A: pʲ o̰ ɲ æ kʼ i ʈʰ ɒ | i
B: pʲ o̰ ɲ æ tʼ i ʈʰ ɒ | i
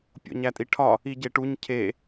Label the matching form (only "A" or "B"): B